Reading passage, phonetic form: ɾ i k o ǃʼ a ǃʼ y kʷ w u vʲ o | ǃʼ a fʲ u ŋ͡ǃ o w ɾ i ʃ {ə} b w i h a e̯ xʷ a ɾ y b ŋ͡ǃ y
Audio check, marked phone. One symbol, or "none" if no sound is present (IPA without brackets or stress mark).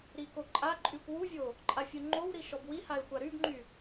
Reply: ɔ